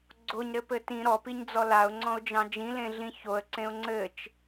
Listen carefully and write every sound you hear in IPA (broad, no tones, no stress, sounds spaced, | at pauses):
ɡ͡ǀ o ɲ ɾ ɘ p ɘ t ĩ ɾ ɔ p i ɲ d͡z ɔ l a ʊ̯ ŋ͡ǀ ɔ̃ ʊ̯ d͡ʒ ɑ̃ d͡ʒ ĩ l ẽ ɮ ĩ ç o ə̯ ǀ ẽ ʊ̯ ŋ͡ǀ ɘ t͡ʃ